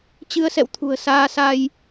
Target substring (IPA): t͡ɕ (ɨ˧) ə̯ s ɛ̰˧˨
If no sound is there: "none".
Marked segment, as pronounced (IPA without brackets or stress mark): ɨ˧